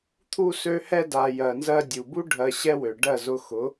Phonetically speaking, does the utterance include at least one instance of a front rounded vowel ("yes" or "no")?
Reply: yes